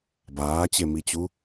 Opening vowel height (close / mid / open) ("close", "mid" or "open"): open